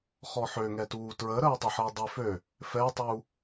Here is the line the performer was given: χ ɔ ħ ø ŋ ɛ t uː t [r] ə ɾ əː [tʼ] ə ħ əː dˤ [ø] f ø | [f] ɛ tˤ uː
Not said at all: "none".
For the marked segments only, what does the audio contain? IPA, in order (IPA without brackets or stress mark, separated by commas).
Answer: ɹ, tˤ, ø, f